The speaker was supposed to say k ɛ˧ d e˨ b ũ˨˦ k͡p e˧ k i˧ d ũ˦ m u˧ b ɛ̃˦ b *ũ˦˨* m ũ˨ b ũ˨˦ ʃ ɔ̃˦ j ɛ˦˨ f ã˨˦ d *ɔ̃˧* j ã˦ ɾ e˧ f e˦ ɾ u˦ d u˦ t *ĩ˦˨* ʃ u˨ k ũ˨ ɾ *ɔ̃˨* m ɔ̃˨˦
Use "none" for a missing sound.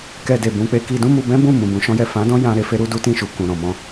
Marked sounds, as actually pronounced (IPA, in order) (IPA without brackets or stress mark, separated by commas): ũ˦˨, ɔ̃˦, ĩ˦˨, ɔ̃˨